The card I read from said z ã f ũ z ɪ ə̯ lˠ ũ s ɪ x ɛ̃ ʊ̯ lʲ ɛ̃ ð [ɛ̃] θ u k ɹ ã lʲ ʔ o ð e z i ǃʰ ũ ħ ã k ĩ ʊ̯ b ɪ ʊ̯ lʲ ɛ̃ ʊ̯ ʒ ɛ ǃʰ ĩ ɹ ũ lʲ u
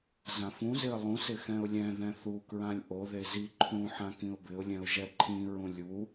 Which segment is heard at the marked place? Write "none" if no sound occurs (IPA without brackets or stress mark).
ɛ̃